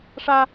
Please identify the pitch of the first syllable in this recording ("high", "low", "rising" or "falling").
high